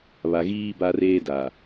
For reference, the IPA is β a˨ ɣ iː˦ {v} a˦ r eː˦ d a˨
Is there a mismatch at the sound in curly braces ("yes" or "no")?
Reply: yes